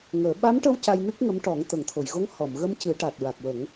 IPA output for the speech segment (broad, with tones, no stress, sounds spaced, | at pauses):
ŋ əː˨˩˦ ɓ a˧˥ m ʈ ə˧ w c a˧ j n ɨ˦˥ k̚ ŋ ə˧˥ m ʈ ɔ˨˩˦ ŋ t̪ ə˨˩˨ ŋ t̪ʰ o˨˩˨ j ɣ o˧˥ ŋ h ɔ˨˩˨ m ɣ ə˧ m c ɨ˨˩˦ ʈ a˨˩ t̚ ɹ a˨˩ k̚ w ə˨˩˦ ŋ